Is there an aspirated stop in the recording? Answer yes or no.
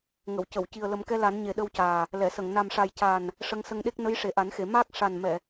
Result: no